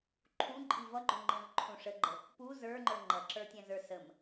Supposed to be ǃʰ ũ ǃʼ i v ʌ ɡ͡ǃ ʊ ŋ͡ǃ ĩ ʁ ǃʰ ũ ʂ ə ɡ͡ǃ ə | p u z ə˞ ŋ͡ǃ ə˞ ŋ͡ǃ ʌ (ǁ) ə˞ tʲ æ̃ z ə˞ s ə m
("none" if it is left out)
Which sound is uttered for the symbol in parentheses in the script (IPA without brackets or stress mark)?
ǁ